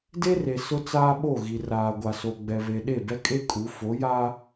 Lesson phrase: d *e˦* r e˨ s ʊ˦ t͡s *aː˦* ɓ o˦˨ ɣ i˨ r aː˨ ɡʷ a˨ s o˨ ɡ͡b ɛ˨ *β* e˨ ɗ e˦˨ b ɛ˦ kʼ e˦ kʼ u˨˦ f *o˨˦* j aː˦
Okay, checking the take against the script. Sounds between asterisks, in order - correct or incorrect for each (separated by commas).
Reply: correct, correct, correct, correct